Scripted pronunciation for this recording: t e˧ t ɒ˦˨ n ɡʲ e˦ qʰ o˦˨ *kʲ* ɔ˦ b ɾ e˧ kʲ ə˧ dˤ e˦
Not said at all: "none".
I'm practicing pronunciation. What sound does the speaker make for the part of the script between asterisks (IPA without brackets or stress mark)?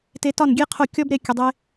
kʲ